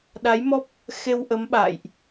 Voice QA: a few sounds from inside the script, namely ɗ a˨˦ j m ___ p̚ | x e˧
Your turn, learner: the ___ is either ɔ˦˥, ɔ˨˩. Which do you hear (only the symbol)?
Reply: ɔ˦˥